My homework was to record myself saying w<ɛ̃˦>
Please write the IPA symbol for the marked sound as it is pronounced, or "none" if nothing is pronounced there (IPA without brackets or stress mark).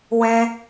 ɛ̃˦